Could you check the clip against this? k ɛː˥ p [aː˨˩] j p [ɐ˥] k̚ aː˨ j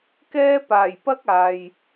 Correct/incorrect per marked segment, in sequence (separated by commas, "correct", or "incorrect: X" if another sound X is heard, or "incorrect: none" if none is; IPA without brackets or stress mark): correct, correct